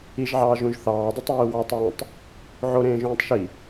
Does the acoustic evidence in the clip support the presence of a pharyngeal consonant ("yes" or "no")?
yes